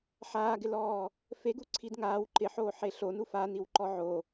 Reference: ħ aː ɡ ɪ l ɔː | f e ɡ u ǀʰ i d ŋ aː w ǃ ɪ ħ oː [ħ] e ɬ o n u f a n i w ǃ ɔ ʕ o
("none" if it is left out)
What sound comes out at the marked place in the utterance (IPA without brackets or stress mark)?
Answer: ħ